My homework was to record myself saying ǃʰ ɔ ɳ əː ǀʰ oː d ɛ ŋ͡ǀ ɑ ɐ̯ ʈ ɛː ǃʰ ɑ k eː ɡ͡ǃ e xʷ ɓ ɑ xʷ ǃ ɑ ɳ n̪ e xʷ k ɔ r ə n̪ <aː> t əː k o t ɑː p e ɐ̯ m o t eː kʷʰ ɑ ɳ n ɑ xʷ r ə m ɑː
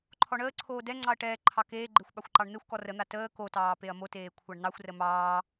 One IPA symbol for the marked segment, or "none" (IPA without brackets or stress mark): a